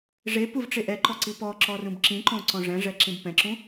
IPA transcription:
ʐepuvʈ͡ʂe ʔɛǃɔǀi pɔǁɔrũb ǁĩǃõǀɔ̃ ʐɛ̃ʐɛǁĩb pɛ̃ǁũ

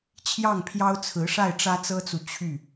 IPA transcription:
t͡ɕʰjɑ˥˩ŋpʰjɑ˥ʊ̯t͡sʰɹ̩˧˥ ʂa˥˩ɪ̯ʈ͡ʂä˥t͡sɤ˥t͡su˨ t͡ɕʰy˥˩

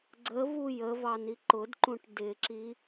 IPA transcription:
ɡ͡ǀəvu jəvɑni ǃʊdǃũʈ dɪǁi

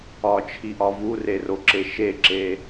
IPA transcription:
ɒt͡ʃʰiʔɒ vureroǁe ʃeǁe

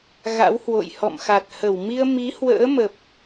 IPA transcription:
ɣa̰˧˥whwo̰˧˨j hɔ̰˧˨mxa˨˩t̚hə˧˩w mi˧ə̯ mi˨˦hwə̰ː˧˥mə˨˩p̚

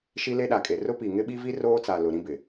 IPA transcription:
ʃi˦le˦ɗa˨kʼe˨ rʊ˦pi˨ ŋɪ˦ɓi˦vi˦ roː˦t͡sa˨ lʊ˨ɾĩ˦bɪ˨

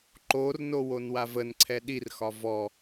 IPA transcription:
ǃorno wonwavənǀʰɛ ɗirxɒ vɔ

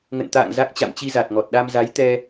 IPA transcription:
ŋə̰˧˨n t̪a̰ː˧˨ŋ za˦˥k̚t͡ɕa̰˧˨m t͡ɕi˧za˨˩t̚ŋɔ˨˩t̚ɗa˧m za˨˦jt̪ɛ˧

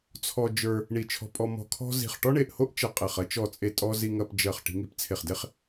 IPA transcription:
t͡sʰɔ˧ d͡ʒə˞˧ | ɳi˧˩t͡ʃʰɔ̤˧pʼɔ˧ mɔ̤˧kʰɔ̤˥ zi̤˧˩χʈɔ˥ɳe˧˩ʔho˥ʔ t͡ʃɐ˧˩qʼe˧˩χ ɐ˥t͡ʃɔ˧˩t͡sʼe˧˩tʼɔ˧ zi˧ŋɐ˧pd͡ʒɜ˧˩χ ʈi̤˧ŋi˧˩pt͡sʰe˧˩χde˥χ

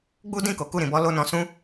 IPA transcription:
ɡ͡bu˦dĩ˦˨ ko˨˦ku˦˨ɾĩ˧bɔ˦ lo˧nɔ̃˧sũ˦

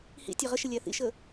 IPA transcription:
hḭ tʲæʁəʃɪ lʲæθḭʃə

